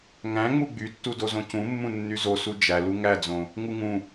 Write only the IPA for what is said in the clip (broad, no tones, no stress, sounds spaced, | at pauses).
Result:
ŋ æ̃ ŋ͡m u ɡ͡b y tː u d o z õ c ũ mː ũ nː y z o s u d͡ʒ æ l u ŋ æ d͡z õ | ŋ u ŋ ũ